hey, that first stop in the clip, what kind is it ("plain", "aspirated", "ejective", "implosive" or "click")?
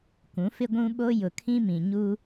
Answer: plain